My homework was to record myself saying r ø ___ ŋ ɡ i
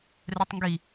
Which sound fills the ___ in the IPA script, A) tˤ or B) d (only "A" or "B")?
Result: A